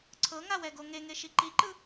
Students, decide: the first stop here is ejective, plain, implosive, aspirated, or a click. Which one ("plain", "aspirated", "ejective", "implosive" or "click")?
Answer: click